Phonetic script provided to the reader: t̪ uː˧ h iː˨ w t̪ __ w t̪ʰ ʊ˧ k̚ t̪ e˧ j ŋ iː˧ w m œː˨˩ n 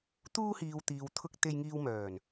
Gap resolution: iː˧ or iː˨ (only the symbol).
iː˨